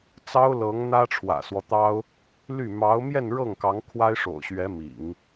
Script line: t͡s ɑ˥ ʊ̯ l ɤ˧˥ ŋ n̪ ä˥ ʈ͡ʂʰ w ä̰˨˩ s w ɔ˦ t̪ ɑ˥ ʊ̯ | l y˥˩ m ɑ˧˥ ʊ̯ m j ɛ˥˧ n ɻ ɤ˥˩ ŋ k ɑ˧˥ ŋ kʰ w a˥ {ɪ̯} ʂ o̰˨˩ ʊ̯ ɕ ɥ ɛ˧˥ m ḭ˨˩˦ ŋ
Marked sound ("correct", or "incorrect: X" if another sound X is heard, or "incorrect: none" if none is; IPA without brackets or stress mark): correct